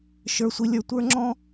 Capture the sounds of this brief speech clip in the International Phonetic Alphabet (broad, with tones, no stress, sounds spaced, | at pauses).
ʃ ə˞˨ sʷ i˨ lʲ ə˞˨ tʷ ə˞˦ ŋ͡ǁ ɔ̃˦